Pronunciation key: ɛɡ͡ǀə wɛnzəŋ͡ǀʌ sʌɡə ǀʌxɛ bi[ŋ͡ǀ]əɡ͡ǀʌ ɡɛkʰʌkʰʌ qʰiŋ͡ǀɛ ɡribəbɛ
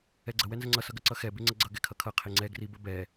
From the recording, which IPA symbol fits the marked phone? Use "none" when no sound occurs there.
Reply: ŋ͡ǀ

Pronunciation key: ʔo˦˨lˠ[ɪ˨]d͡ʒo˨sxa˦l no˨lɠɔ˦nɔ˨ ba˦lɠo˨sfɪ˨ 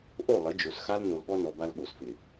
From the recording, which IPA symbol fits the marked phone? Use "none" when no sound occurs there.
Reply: ɪ˨˦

